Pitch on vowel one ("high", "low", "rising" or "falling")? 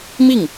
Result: falling